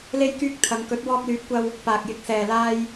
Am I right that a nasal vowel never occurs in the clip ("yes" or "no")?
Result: yes